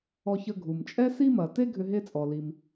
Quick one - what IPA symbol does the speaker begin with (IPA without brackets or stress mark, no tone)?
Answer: ɔ